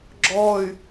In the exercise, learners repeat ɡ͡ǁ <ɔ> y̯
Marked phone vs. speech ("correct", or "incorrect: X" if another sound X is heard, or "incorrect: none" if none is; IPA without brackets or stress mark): correct